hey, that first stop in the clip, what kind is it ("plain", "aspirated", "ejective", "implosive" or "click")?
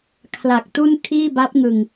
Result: aspirated